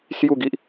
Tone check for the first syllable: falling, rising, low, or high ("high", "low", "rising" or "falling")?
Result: falling